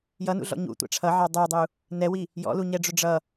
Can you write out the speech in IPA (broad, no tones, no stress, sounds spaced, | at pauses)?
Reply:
j ʌ n ṵ ɮ ɔ̰ ɲ ṵ tʷ æ̰ ʈ͡ʂʰ ʌ ʕ ɑ dˤ ə˞ dˤ u | n ɛ w i | j ɔ̰ l u ɲ ɛ ɖ͡ʐ ʊ ɖ͡ʐ ʌ